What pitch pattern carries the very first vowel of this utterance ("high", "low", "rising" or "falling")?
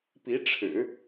rising